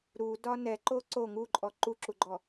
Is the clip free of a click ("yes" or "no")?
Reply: no